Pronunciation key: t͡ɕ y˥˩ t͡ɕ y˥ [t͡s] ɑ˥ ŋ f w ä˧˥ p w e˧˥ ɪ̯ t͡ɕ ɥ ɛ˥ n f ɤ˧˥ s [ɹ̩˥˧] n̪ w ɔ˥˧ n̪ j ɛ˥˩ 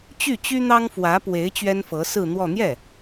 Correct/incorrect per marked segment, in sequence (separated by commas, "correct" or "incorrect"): incorrect, correct